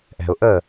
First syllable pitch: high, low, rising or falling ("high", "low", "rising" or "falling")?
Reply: low